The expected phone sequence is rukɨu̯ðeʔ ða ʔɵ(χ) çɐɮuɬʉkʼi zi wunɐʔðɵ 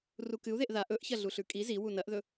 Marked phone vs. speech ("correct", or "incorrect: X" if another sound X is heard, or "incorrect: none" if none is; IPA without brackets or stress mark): incorrect: ʔ